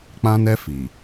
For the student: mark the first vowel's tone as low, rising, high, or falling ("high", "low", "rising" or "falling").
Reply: high